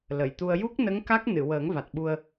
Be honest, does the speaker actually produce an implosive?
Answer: yes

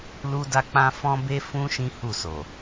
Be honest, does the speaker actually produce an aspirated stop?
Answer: no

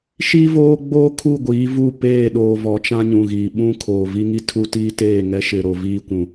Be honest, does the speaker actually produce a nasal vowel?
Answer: yes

